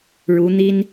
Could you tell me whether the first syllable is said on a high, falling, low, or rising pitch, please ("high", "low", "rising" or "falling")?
rising